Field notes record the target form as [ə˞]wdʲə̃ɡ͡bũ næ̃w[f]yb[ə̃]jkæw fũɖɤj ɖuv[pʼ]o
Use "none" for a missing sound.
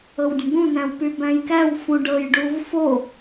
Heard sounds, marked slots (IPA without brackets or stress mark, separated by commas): ɤ, p, æ̃, f